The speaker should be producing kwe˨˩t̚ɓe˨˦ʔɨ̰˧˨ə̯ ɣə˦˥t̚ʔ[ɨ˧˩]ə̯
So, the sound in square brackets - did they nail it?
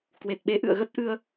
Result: no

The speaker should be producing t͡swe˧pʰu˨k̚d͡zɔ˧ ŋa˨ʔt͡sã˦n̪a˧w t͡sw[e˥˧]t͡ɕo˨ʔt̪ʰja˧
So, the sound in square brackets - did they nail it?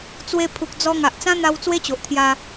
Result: no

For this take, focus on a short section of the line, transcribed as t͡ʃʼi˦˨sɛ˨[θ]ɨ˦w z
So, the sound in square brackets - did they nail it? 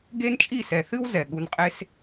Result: yes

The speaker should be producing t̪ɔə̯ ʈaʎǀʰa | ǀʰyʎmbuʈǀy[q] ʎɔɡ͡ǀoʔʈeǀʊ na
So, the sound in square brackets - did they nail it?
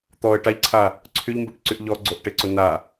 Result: no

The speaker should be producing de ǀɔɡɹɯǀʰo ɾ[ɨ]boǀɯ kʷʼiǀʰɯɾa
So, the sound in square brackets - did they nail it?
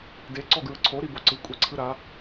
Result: no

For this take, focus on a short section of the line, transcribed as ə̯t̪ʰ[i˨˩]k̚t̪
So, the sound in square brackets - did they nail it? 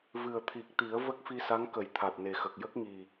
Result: yes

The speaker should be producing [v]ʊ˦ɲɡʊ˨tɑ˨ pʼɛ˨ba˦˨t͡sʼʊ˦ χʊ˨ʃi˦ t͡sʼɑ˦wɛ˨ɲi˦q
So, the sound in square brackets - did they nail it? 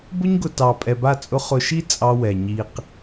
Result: no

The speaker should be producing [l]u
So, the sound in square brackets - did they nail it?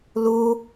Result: yes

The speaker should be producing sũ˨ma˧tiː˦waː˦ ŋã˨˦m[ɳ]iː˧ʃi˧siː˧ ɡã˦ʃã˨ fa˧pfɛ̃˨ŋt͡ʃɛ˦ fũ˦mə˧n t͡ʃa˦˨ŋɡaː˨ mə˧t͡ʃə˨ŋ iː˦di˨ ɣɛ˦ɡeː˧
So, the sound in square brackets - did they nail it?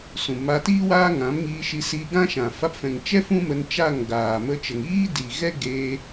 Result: no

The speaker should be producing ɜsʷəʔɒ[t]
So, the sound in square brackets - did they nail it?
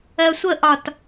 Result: yes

